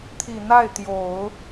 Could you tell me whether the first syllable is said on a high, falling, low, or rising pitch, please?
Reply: low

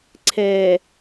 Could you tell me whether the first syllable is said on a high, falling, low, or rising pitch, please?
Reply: low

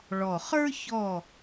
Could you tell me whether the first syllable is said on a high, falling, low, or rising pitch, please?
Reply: low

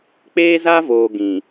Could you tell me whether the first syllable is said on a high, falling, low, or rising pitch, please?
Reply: high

